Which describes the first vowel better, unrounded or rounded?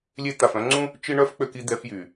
unrounded